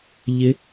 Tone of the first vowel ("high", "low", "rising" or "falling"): rising